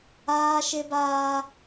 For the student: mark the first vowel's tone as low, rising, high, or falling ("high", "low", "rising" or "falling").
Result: high